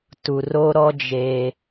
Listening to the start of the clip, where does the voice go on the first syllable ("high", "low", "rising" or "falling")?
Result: low